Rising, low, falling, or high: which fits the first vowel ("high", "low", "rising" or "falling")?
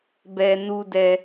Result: high